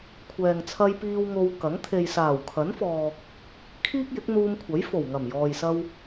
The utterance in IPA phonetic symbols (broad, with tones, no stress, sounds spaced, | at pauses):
kʷʰ ɛː˨ ŋ t͡sʰ ɐ˧ j p iː˧ w ŋ o˧ w k ɐ˨˥ ŋ t̪ʰ e˨ j s aː˨˩ w kʰ ɐ˨˥ n f ɔː˨ | kʰ iː˥ k̚ j ɪ˨˥ k̚ n̪ uː˧ m kʷʰ ɐ˨˥ j f o˨˩ w ŋ ɐ˨˩ m j ɔː˨ j s ɐ˧ w